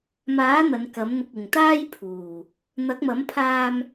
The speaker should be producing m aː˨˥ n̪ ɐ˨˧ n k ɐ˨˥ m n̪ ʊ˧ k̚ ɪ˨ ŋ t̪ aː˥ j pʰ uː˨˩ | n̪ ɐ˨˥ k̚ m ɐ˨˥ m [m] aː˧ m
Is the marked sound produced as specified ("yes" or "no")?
no